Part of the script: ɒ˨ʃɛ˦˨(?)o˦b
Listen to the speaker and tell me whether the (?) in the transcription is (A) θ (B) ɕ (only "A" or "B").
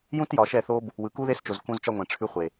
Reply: A